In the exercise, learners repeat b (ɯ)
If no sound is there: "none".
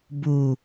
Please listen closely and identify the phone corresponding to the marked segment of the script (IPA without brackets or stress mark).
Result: u